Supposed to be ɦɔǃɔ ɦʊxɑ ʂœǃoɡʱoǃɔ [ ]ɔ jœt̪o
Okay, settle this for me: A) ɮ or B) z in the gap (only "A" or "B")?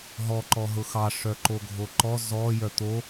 B